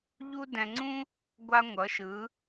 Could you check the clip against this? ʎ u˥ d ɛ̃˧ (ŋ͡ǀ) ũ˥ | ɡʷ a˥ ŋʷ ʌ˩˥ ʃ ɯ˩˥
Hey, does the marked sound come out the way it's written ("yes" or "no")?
yes